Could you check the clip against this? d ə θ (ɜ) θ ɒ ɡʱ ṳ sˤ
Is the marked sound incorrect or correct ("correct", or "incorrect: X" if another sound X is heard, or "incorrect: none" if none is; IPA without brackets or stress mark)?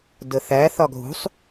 incorrect: æ